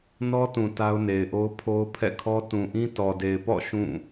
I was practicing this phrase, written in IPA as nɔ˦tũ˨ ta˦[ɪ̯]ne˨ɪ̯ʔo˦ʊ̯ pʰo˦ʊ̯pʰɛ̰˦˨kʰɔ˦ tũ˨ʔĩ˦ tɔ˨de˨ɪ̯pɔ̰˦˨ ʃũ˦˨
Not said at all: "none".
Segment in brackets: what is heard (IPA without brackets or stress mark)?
ʊ̯